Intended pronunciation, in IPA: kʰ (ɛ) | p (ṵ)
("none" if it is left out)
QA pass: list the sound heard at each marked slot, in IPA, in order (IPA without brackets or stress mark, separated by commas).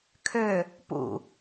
ø, ṵ